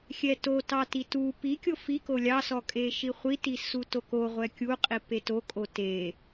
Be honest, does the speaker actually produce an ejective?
yes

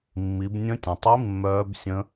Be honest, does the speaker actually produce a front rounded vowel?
yes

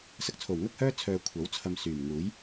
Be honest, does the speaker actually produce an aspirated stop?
yes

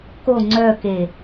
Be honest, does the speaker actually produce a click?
yes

